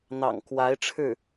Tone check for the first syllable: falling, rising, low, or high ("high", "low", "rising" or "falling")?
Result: low